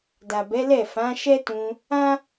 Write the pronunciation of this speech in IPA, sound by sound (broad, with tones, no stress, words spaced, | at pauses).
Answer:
da˨bɛ˨˦lɛ˦˨fã˨˦ ʃɛ˦tũ˧ | ã˦